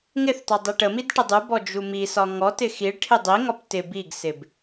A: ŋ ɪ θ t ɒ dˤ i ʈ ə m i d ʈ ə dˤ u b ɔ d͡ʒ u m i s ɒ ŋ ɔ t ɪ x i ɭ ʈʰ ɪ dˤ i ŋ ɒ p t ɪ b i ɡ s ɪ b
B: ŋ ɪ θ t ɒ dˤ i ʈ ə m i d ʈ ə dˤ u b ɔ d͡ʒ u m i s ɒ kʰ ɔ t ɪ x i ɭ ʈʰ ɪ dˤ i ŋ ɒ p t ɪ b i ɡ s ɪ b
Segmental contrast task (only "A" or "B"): A